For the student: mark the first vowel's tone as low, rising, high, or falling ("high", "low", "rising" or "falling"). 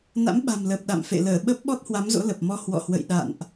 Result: rising